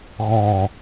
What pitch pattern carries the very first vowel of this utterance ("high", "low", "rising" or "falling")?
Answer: low